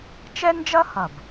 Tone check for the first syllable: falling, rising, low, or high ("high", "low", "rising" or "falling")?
high